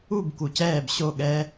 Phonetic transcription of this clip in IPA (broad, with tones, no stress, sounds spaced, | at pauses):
u˦˨ b k u˨ c ɛː˦˨ b ɕ o˦˨ ɠ ɛ˧